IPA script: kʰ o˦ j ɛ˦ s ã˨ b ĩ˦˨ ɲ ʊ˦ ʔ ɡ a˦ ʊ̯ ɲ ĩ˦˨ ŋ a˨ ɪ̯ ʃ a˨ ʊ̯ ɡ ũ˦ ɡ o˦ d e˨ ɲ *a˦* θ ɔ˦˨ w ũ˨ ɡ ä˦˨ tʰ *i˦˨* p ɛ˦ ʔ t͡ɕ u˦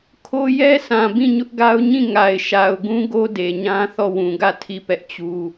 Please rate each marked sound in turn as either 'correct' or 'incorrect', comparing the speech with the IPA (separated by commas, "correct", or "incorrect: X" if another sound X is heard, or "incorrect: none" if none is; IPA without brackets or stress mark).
incorrect: ã˦, correct